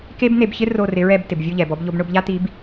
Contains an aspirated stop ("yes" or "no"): no